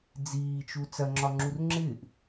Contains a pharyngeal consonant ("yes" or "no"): no